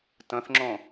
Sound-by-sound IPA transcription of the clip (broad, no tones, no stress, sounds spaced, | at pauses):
t ə̃ θ ŋ͡ǁ õ